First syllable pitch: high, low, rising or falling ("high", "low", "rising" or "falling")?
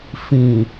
low